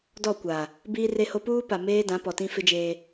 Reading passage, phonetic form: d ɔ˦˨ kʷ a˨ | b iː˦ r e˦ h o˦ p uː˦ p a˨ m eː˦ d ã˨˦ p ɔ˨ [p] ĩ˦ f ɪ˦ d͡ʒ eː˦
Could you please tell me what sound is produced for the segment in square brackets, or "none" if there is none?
t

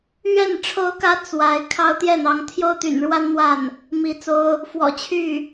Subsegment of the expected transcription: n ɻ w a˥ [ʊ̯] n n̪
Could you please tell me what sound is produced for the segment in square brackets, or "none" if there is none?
none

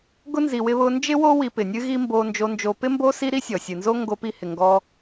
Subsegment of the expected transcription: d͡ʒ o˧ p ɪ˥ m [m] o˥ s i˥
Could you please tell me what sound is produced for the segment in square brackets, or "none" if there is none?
b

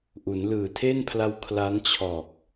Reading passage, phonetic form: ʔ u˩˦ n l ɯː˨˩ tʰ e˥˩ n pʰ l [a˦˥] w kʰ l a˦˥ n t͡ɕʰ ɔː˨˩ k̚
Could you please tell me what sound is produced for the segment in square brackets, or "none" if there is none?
a˦˥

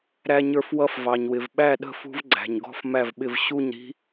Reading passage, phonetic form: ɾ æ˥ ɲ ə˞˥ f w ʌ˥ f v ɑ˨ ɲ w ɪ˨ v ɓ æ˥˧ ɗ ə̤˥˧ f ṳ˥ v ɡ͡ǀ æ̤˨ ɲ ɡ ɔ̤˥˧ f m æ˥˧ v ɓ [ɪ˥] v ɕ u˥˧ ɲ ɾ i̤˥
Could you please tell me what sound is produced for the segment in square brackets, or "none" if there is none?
ɪ˥˧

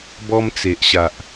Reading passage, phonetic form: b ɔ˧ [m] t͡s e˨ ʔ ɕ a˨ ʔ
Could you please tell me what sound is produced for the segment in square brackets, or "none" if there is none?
m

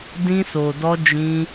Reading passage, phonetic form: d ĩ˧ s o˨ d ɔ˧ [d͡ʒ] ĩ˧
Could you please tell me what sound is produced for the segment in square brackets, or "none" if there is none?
d͡ʒ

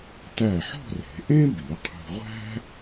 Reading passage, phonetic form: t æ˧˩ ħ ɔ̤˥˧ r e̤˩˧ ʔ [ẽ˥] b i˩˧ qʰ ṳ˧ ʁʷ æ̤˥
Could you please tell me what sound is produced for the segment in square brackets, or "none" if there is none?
ẽ˥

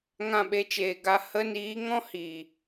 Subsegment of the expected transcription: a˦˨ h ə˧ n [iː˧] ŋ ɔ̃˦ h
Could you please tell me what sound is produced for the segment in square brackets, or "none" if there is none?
iː˨˦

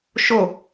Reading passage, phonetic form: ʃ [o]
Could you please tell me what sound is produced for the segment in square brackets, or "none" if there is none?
o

